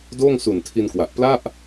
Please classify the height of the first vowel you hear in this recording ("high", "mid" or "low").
mid